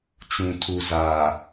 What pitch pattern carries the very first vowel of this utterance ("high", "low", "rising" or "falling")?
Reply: low